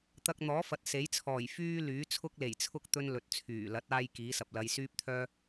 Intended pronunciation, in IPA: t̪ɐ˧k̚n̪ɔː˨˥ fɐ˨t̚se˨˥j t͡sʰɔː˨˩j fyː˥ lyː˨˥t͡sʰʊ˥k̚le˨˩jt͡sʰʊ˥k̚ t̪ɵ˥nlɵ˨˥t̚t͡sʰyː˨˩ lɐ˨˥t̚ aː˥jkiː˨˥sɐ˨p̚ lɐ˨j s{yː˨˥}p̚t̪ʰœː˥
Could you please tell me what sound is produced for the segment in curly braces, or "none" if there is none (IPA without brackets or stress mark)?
yː˥